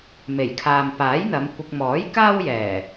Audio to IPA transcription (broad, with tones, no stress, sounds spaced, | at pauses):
m e˨˩ j kʰ aː˨ m p aː˨˥ j n̪ ɐ˨˧ m kʷ ɪ˧ k̚ m ɔː˨˥ j k aː˥ w j ɛː˨˩